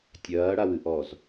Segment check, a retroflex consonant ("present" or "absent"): present